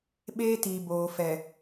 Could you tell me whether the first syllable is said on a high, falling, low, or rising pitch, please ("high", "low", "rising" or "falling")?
high